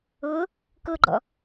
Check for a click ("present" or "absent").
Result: present